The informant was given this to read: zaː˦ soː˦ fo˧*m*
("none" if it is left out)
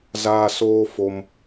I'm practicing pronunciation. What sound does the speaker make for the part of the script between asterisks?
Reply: m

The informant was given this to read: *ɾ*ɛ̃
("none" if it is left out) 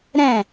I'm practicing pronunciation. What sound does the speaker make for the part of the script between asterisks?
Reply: ɾ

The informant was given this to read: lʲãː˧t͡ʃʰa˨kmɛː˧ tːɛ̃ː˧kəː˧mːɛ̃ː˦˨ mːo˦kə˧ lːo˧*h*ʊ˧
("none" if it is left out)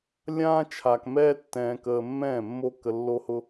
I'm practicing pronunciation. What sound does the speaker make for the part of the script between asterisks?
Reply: h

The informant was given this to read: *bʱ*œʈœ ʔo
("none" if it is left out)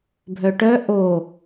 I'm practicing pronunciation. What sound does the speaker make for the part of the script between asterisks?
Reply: bʱ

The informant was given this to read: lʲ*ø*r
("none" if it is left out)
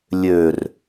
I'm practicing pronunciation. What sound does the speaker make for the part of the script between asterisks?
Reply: ø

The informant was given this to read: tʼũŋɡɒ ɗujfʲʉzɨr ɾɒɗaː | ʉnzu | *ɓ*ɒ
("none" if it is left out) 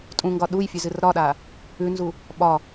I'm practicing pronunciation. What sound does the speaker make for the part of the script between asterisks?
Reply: ɓ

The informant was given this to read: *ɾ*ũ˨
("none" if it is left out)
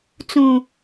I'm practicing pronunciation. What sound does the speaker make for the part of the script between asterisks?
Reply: t͡s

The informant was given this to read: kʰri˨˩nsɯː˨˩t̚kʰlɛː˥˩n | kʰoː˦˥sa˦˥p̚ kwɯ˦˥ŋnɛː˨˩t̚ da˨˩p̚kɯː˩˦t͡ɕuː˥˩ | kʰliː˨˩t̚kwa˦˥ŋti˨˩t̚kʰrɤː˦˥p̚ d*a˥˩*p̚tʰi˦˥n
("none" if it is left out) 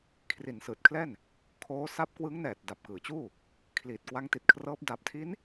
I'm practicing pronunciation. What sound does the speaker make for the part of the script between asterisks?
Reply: a˨˩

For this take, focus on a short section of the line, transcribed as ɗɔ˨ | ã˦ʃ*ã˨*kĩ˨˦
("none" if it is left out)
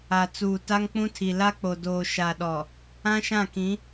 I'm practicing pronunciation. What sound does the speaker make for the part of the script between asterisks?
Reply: ã˦˨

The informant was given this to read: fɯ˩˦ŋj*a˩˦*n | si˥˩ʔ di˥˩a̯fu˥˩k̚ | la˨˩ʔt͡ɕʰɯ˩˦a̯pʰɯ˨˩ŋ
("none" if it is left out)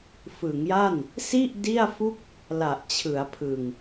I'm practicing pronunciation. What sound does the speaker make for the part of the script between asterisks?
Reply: a˥˩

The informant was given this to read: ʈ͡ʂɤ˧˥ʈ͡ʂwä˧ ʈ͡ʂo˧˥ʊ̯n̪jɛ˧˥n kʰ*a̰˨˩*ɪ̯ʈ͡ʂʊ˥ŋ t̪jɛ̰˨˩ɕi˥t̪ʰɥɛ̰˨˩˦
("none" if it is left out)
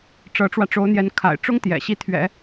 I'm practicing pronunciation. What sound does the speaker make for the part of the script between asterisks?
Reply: a̰˨˩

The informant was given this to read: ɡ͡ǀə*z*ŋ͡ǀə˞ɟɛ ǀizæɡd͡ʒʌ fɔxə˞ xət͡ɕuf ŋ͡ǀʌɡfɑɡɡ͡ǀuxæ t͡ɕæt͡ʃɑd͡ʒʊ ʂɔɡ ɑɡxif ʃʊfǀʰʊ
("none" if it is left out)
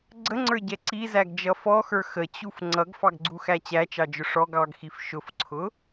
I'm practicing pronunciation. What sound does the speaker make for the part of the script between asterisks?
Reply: none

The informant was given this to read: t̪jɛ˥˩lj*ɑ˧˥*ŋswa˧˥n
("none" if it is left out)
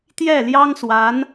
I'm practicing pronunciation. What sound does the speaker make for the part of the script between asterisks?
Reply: ɑ˥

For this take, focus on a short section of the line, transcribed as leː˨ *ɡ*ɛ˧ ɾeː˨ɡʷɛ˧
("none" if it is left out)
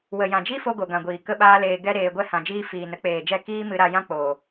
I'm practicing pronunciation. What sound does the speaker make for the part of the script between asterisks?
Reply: ɡ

